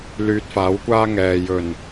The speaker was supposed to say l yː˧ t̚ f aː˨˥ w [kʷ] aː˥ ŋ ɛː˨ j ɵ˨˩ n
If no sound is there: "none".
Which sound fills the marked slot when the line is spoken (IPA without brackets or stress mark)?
kʷ